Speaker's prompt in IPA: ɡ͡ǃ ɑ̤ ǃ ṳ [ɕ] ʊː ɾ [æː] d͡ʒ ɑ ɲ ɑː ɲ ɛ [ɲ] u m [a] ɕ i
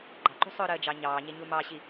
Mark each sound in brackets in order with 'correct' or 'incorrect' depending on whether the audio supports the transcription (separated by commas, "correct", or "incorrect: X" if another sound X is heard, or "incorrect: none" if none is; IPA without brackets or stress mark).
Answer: incorrect: sˤ, incorrect: əː, correct, incorrect: ɑ